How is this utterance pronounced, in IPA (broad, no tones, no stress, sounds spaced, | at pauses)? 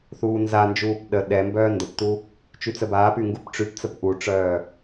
θ uː n z a n d͡ʒ uː p ɗ ə ɗ ɛ m b œː n d ə p t u | t͡ʃ y t͡s ə b aː p y ŋ ɡ u p ʈ͡ʂ y p t͡s ə p ʔ u ʈ͡ʂ œː